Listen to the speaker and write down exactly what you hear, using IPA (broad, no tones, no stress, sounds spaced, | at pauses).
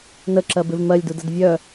n ə ǁ ɜ b ɪ v m ɜ lʲ d u d ə d vʲ œ